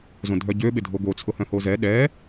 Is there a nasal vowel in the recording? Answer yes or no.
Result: yes